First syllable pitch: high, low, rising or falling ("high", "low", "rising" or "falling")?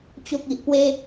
low